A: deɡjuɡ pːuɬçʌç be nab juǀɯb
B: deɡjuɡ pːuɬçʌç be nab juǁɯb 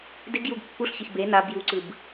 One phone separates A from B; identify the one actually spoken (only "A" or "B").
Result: A